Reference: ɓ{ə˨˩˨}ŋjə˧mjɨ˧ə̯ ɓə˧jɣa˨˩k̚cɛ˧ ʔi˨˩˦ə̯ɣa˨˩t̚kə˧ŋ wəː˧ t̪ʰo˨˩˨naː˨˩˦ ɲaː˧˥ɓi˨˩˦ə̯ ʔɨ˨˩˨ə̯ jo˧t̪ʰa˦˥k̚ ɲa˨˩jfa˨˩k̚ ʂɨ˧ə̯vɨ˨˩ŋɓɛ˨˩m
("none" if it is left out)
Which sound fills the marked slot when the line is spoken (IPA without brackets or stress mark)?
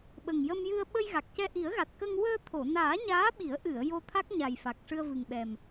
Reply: ə˨˩